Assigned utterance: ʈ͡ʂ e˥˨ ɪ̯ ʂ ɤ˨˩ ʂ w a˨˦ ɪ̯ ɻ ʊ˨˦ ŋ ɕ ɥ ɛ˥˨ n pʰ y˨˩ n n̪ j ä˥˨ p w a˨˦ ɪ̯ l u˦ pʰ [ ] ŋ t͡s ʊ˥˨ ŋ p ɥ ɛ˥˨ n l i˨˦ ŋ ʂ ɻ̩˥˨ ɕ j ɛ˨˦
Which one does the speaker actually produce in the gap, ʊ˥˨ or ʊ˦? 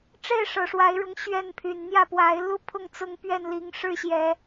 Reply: ʊ˥˨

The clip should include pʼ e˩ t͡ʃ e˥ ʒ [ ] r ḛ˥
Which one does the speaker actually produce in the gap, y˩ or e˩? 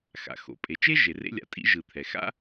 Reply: e˩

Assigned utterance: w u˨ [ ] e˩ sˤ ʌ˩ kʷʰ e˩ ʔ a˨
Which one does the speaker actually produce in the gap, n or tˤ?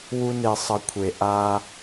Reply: n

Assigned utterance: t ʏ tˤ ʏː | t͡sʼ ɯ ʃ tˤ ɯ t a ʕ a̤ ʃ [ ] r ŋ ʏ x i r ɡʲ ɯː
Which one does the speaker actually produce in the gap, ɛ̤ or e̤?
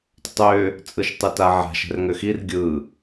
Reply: ɛ̤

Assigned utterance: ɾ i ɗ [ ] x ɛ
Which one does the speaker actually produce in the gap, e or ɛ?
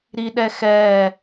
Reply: ɛ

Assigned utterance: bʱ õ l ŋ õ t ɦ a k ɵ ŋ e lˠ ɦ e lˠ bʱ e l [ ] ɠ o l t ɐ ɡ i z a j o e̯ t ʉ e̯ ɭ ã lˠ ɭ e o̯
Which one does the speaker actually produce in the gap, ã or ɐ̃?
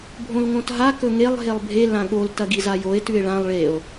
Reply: ã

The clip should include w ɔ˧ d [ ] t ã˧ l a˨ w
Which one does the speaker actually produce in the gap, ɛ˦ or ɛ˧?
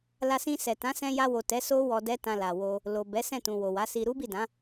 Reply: ɛ˦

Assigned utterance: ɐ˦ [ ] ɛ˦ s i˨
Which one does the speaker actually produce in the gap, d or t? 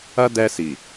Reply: d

